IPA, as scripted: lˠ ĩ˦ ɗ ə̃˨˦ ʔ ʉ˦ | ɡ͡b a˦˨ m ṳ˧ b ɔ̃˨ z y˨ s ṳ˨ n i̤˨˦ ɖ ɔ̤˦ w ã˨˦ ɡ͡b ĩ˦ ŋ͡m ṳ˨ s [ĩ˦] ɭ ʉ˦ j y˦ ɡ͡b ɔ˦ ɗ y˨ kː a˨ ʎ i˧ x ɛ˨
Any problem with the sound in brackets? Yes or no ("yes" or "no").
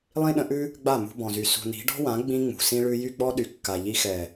no